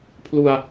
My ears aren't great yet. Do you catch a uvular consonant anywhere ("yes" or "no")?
no